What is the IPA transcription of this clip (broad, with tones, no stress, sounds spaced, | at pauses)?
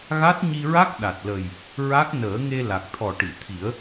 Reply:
ɣ a˦˥ t̚ ɲ i˧ ɹ a˦˥ k̚ ɗ a˨˩ t̚ l ə˨˩ j | ɹ a˦˥ k̚ n əː˨˩˦ ŋ e˧ l a˨˩ k̚ t̪ʰ ɔ˨˩ ʈ i˨˩˨ t̪ʰ i˨˩˦ ə̯